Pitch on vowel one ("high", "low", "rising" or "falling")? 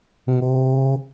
high